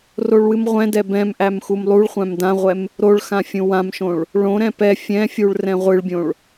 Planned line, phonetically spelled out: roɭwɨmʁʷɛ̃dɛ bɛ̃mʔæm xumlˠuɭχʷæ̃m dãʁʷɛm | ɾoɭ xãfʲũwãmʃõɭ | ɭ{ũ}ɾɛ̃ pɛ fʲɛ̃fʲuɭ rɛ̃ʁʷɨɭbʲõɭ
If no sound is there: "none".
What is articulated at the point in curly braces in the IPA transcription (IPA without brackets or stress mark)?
õ